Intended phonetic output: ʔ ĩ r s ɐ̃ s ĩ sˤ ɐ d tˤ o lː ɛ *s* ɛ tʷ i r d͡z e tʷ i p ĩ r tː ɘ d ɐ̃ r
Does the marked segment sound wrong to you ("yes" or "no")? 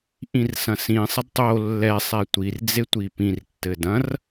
yes